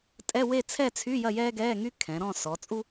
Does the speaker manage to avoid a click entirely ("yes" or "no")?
yes